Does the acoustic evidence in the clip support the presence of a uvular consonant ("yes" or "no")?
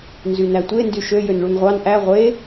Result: yes